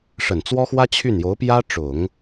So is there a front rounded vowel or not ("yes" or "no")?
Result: yes